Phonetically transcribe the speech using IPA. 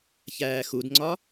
çæːxudŋ͡ǀɒ

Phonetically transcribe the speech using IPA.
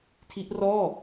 tʰi˦˥ʔrɔː˥˩

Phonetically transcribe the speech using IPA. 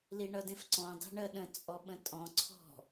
liɳʌdẽfǀɔ̃ dˤe̤ɳɜɗə̃ t͡sʼɔɓə̃tʼɔ̃ ǀʰɔ̤

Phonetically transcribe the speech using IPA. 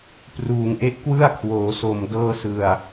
pruː˨˩ŋʔe˦˥ʔ kwɯ˥˩a̯kʰwoː˩˦so˨˩m dɤː˧sɯ˨˩a̯

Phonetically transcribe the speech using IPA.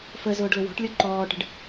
fə zʊːɖlʊwɔ̤ʈlʲɔ ǃɔːʈə̤ɖ

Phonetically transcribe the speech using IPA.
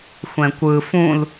xʷɛ̃kʷɯ fũl

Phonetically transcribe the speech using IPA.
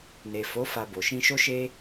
ne˨fo˨˦ fa˧bo˨ ʃĩ˧ʃo˦ʃe˦

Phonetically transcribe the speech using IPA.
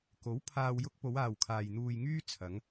ko˨˥w pʰaː˨wjʊ˧k̚ po˨˧waː˨wkʰaː˨j n̪uː˨j ŋyː˥ t͡sʰɐ˨˧ŋ

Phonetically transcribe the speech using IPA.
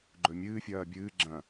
ɡ͡ǃɵmʲɨːfʲɐː bʲɨː ɡ͡ǁɐ̃

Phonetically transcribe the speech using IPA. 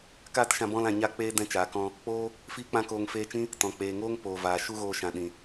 kaː˦tʃã˧ bɔ̃˧lã˨ ɲa˧k͡peː˧ dɛ̃˧t͡ʃaː˨kɔ̃˧ | k͡poː˦ | fiː˦k͡pã˦koː˧ŋ feː˧t͡ʃĩ˦ | tɔ̃˨k͡peː˨ŋoː˦ŋ poː˨vaː˨ ʃu˦ɣoː˧ ʃã˨ɗĩ˨

